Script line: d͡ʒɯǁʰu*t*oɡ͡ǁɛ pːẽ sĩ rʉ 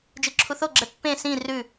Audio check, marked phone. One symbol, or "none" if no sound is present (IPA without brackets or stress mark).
θ